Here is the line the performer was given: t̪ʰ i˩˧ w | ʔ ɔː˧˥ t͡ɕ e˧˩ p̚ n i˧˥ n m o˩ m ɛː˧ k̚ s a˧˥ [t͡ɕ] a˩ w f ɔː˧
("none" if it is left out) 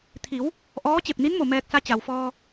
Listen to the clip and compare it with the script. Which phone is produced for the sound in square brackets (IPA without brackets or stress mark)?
t͡ɕ